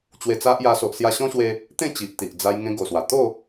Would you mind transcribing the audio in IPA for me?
t͡ɕwe˧t͡sa˦ʔja˧ so˨ʔsja˧ɕɔ̃˦ɕwe˧ | t̪ẽ˥˧ t͡ɕi˨ʔt̪i˨ʔ d͡za˧j ŋẽ˧ɡo˨˩swa˨˩ t̪o˥˧

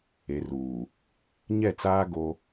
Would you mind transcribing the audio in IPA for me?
e˨ruː˨ | ɲɛ˦˨t͡saː˦ ɡo˦

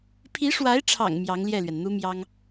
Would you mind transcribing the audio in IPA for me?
pʰi˧˥ʂwa˧˥ɪ̯ʈ͡ʂʰɑ̰˨˩ŋ mjɑ˧˥ŋljɛ˥˩lɥɛ˩nn̪u˥ mjɑ˥ŋ

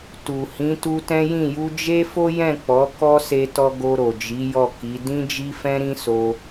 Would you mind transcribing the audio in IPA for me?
tu˨ hĩ˨˦tu˧tɛ̃˦jĩ˦˨ ju˧d͡ʒe˦fo˦jɛ̃˦˨ k͡pɔ˨˦kɔ˦se˧ tɔ˧ɡo˧ɾo˨d͡ʒi˨˦ jɔ˦˨ki˨˦ dĩ˦d͡ʒi˦fɛ̃˦ɾĩ˦ so˧

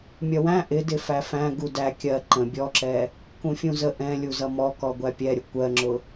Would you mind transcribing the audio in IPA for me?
mʲʌwæ̃ ʔɪdɪ fæfæ̃ ɡudæ kʲɜ ǃə̃ bʲɔǁɛ | kũfʲũzə ʔɛ̃ lʲuzʌmɔkɔ ɡʷæpʲɛɾʲʊ kʷɜŋ͡ǁʊ

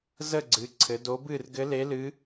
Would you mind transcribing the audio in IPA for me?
zə˥˨ɡ͡ǀɨ˩˧ ǀʰɘ˩˧do˧˥bɨː˥˨r ɡɘ˧˥le˧˥lɨ˧˥

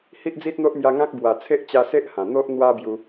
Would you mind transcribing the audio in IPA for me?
hi˦ʔd͡zi˦t̚n̪o˦ʔmja˧ ŋã˦k̚ bwa˨˩t͡sʰe˦ʔt͡ɕa˧se˦ʔ hã˨˩ n̪o˦ʔ n̪wa˦bju˧

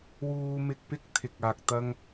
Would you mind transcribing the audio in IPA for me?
wuː˧mɪ˧k̚pɪ˥k̚t̪ʰɪ˨k̚ aː˧k̚t̪ɐ˥ŋ

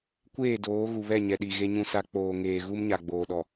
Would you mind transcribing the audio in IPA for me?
kʷeː˦˨doː˨˦ɣu˨βɛ˦˨ ɲɛ˨ɗi˨ ɣe˦ɲũ˦sa˦ k͡poː˨ŋeː˨ ɣu˦mɲa˨ ɡ͡boː˨ɗɔ˨

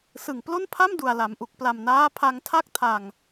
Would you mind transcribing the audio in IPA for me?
sɯ˨˩ŋplo˥˩npʰa˥˩m du˨˩a̯la˩˦mʔu˨˩k̚ pla˨˩mnaː˦˥ pʰa˧ŋtʰa˥˩k̚tʰa˨˩ŋ

